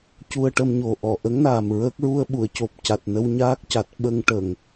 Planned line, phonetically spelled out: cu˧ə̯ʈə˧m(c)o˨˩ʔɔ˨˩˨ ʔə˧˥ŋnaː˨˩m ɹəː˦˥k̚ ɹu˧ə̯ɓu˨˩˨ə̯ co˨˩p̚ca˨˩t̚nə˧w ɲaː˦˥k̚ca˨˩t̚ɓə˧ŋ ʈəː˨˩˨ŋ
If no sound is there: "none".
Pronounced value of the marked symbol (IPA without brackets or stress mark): ɲ